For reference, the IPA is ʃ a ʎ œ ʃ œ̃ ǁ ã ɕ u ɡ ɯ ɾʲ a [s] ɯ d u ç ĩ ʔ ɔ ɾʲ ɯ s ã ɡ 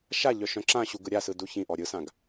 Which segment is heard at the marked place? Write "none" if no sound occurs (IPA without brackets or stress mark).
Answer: s